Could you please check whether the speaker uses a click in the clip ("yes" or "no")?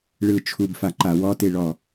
yes